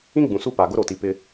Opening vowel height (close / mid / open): close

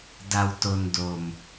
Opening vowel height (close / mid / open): open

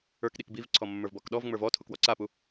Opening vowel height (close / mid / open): mid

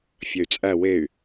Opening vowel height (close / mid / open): open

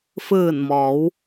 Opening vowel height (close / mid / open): close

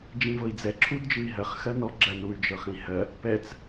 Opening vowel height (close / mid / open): close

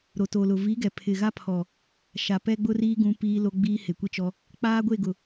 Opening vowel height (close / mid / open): mid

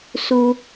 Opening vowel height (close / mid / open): close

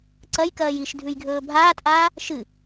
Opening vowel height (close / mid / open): open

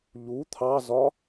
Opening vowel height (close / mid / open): close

